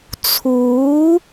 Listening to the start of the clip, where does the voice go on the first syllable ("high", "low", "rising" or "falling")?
rising